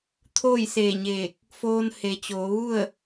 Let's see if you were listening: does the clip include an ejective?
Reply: no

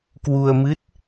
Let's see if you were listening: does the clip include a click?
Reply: no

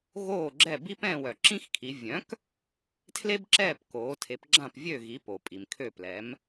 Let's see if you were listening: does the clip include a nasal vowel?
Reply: yes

